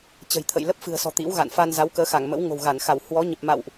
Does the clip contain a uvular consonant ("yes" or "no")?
no